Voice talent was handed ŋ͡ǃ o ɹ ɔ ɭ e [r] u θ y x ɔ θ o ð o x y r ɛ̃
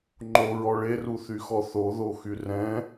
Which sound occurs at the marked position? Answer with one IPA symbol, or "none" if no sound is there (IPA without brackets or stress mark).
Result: r